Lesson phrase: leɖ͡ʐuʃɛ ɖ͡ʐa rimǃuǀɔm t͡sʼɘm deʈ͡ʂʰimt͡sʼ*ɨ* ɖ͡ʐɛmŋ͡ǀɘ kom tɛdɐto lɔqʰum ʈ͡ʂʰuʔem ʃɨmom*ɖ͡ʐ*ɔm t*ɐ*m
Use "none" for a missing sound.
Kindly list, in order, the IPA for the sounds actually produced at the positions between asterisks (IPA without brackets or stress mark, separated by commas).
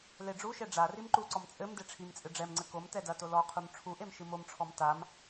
ɨ, ʈ͡ʂʰ, a